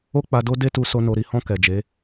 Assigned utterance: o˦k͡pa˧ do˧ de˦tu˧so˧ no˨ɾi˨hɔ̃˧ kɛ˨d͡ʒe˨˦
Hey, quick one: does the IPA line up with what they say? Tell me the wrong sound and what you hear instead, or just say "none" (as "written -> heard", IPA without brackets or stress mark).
none